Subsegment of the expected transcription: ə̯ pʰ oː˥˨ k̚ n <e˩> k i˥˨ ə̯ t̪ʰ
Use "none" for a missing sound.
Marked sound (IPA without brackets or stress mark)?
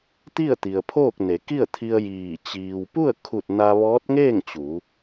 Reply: e˩˧